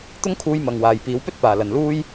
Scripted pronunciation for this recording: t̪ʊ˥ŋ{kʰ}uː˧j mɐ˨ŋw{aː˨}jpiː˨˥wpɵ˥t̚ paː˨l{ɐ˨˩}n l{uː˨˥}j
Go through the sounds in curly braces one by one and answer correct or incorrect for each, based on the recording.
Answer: correct, correct, incorrect: ɐ˨˧, incorrect: uː˥

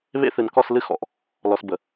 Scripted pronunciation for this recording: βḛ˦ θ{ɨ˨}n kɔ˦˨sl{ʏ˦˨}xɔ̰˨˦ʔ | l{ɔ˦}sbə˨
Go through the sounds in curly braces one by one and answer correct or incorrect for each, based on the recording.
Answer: correct, incorrect: ɨ˦˨, incorrect: ɔ˨

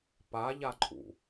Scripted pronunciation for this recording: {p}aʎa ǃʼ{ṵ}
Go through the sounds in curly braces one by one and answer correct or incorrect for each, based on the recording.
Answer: correct, correct

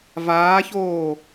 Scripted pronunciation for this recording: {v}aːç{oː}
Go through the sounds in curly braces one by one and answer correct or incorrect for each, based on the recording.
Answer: correct, correct

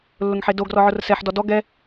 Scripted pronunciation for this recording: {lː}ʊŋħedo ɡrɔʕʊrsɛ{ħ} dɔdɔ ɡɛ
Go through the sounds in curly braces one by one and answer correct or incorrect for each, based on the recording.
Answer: correct, correct

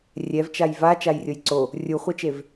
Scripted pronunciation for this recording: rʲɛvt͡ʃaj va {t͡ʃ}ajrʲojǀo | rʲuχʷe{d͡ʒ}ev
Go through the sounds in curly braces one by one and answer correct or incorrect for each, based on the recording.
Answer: correct, incorrect: t͡ʃ

